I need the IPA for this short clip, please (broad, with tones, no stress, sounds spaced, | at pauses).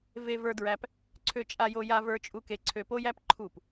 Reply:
v e˧ v ə˞˧ d ɹ æ˧ p | ǀʰ ø˧ t͡ʃʼ a˧ j o˧ j a˧ v ə˞˧ t͡ʃʼ u˧ k e˧ ǀʰ ø˧ p o˦ j æ˦ p ǃʰ u˦˨ p